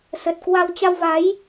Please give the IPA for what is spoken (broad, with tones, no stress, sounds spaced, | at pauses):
s ə˨˩ t̚ k w a˧ w t͡ɕ a˧ w v a˨˦ j